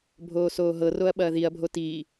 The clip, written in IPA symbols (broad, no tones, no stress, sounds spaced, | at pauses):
bʱ oː s oː ɦ ɤ r o ɐ̯ ɓ ɐː ð i ɐ̯ bʱ o t i